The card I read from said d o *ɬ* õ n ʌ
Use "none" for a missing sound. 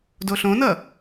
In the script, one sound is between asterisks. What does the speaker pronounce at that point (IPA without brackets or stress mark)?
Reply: ɬ